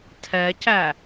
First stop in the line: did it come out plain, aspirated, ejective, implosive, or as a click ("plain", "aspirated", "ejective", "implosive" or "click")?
aspirated